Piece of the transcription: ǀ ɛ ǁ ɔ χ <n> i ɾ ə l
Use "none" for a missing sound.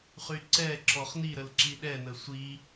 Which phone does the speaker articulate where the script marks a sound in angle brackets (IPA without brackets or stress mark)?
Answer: n